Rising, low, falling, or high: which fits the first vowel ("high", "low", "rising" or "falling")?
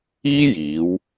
high